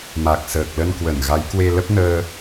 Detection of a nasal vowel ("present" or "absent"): absent